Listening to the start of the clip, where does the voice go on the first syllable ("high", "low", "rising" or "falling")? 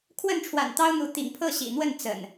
falling